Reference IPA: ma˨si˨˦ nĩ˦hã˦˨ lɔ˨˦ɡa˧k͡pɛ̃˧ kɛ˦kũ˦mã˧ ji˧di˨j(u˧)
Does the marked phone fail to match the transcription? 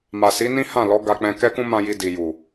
yes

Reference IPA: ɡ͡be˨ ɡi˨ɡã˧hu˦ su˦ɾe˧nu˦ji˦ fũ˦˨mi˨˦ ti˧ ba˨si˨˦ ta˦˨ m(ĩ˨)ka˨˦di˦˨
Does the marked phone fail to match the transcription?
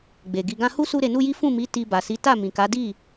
no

